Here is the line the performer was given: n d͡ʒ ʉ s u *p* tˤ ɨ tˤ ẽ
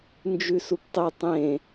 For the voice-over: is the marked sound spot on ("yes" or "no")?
yes